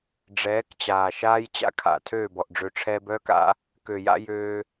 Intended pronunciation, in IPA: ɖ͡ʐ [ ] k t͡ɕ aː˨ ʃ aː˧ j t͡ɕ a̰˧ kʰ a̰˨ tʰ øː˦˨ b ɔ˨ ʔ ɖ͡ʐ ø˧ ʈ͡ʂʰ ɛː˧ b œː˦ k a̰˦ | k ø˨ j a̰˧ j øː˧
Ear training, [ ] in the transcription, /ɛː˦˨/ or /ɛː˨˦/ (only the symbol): ɛː˨˦